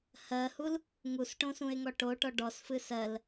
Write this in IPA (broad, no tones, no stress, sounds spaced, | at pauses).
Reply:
h ɜ h u l | ŋ u s ʈ õ s ũ e̯ ŋ ɔ ʈ o ʈ ɔ ɖ ɔ s f ɨ s ɜ l